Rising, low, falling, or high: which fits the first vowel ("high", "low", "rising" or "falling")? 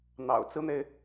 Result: low